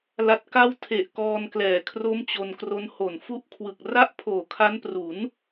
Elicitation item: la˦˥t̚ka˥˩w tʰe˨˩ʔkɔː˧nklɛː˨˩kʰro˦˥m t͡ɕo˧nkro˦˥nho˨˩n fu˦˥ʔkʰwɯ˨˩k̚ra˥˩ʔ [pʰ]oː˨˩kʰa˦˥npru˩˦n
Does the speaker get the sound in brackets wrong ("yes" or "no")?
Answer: no